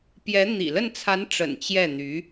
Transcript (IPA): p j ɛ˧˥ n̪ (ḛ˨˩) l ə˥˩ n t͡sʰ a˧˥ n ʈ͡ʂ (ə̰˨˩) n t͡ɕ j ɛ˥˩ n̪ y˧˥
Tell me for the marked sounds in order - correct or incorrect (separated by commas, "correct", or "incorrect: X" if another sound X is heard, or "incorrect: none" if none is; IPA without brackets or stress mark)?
incorrect: ḭ˨˩, correct